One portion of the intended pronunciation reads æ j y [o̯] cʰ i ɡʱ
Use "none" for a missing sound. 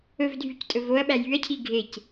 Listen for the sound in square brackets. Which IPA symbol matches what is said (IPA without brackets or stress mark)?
ɐ̯